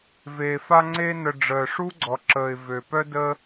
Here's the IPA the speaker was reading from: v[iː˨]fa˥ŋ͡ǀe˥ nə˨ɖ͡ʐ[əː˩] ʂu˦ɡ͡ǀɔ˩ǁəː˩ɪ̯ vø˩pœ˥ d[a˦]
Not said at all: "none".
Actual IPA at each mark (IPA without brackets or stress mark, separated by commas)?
eː˨, əː˩, ə˦